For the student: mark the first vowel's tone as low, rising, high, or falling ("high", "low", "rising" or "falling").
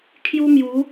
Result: high